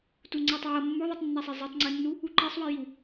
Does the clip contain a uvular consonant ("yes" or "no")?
no